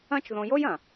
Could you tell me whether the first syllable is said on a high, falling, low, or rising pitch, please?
high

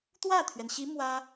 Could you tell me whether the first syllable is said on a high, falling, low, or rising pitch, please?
falling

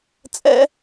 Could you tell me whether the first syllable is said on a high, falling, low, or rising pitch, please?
high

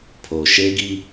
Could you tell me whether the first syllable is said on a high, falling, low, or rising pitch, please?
low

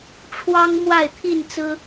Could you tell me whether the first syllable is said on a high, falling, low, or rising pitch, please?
high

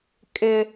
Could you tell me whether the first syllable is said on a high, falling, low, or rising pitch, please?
high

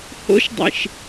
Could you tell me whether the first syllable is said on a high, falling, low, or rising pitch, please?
rising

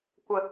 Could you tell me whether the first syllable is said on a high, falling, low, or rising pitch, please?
low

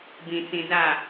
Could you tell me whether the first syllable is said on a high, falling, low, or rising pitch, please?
low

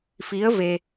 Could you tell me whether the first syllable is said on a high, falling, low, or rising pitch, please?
rising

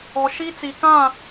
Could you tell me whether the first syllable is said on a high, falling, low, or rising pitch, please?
low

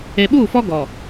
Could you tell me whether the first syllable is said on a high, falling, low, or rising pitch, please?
low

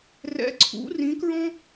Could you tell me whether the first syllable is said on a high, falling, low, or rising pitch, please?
rising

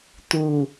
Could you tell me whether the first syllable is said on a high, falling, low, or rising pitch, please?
low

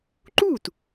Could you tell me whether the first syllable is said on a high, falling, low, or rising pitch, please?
falling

